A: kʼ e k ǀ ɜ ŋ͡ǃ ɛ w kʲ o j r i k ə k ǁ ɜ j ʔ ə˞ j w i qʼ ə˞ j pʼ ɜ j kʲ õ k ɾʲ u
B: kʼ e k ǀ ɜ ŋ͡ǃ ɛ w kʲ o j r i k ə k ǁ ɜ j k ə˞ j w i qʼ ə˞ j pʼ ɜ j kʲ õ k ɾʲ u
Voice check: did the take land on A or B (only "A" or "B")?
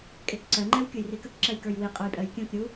B